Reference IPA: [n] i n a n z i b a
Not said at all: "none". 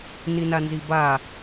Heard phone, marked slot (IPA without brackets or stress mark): n